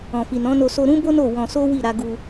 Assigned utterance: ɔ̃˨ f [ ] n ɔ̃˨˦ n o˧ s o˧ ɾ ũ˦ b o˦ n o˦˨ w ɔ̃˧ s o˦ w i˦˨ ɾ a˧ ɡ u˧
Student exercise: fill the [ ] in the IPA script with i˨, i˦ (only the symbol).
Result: i˨